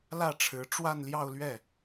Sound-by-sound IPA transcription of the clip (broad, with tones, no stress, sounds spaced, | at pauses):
l ä˥˩ ʈ͡ʂʰ ɻ̩˧˥ ʈ͡ʂ w a˥˧ n l j ɑ˥˧ ʊ̯ l ɥ ɛ˥˩